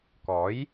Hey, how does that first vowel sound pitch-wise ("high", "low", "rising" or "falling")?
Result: rising